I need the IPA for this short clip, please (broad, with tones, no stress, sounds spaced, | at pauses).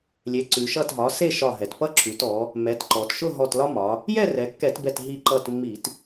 lʲ e˩˧ ǀ ʉ˩ ʃ ʌ˧˩ t ɦ ɒ˩˧ s e˥˨ ʃ ɒ˧˩ ɦ ɛ˩ t p ʌ˦ ǁ ʉ˩˧ t ɔ˩˧ | m ɛ˩˧ t ǃ ɔ˩ t ʃ ʊ˥˨ ɦ ɔ˧˩ t l ɒ˦ m ɒ˩˧ | j ɛ˥˨ r ɛ˩˧ kː ɛ˧˩˧ t b ɛ˧˩ t ɦ i˧˩ ǃ ʌ˧˩ t mː i˧˩˧ t